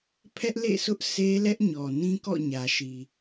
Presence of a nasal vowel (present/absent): present